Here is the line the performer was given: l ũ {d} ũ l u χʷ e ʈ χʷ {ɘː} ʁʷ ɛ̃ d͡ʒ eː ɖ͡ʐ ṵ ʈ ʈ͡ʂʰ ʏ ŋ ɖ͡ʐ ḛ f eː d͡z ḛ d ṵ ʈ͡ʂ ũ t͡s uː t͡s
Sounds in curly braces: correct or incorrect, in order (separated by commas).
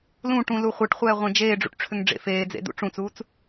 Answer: incorrect, incorrect